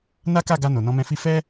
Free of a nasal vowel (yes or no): no